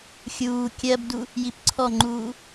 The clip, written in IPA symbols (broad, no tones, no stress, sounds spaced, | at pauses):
xʲ uː kʲ ɜ b d u | j i p ǀʰ ɔ ŋ͡ǃ uː